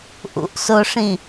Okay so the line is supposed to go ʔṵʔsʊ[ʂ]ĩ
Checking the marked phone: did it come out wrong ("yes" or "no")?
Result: no